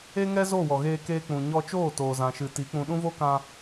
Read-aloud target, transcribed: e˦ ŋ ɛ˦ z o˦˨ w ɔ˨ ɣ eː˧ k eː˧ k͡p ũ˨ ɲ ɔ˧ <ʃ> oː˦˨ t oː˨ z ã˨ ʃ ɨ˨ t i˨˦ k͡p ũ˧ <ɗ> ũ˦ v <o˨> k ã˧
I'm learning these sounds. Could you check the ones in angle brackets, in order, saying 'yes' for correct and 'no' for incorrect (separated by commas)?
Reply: no, yes, no